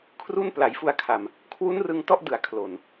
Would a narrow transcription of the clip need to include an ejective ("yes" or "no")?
no